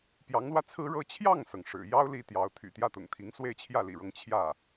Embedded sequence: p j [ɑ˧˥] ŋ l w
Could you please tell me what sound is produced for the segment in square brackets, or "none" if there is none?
ɑ˧˥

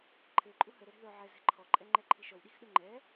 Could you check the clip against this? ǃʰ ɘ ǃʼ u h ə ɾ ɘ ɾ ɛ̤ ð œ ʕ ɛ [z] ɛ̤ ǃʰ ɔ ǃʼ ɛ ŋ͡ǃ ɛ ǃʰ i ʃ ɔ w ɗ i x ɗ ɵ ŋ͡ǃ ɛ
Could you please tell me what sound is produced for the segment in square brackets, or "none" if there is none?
z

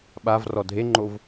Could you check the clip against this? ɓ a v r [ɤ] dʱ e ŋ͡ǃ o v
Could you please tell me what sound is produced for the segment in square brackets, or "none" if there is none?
ɔ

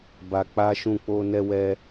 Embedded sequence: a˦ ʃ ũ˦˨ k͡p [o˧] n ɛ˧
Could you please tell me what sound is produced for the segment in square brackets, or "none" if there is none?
o˧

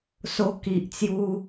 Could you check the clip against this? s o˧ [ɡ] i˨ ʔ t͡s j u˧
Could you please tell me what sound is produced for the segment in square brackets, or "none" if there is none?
k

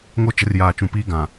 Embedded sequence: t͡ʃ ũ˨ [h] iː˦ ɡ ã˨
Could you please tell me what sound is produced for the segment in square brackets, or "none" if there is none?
p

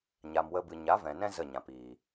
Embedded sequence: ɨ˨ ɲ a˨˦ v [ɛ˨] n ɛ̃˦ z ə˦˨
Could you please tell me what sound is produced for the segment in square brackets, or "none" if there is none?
ɛ̃˨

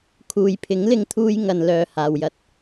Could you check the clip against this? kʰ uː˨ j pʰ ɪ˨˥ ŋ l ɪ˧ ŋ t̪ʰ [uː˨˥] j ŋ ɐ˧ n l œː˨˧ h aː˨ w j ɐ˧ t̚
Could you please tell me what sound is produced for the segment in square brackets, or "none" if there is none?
uː˧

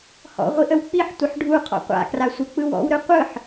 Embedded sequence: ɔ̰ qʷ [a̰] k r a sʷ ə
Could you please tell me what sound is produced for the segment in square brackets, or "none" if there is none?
a̰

